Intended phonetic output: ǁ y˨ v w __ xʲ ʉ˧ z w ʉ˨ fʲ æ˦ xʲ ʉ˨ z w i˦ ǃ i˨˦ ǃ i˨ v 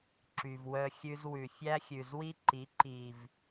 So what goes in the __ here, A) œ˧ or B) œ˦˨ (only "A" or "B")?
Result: A